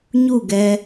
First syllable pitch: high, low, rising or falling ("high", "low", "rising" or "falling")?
falling